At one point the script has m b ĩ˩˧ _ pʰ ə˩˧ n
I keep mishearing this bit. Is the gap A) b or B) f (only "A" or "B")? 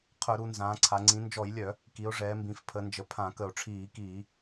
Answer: B